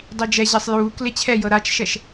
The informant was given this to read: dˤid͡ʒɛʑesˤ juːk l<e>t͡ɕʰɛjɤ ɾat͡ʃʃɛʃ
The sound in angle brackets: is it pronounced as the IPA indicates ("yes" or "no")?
yes